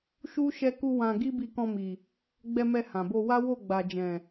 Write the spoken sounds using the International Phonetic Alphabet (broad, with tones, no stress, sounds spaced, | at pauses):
ʃ u˦ ʃ ɛ˦ k u˦ w ã˧ ɡ i˦ b i˧ k ɔ̃˧ m i˨ | ɡ͡b ɛ˧ m ɛ˧ h ã˨ b o˧ w a˦ w o˦˨ ɡ͡b a˨ d͡ʒ ɛ̃˨